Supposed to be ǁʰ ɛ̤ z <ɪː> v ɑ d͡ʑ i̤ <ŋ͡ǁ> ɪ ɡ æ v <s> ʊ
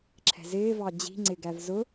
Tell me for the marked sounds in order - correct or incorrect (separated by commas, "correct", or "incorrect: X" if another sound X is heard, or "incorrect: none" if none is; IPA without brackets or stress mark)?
correct, incorrect: ŋ͡ǀ, incorrect: z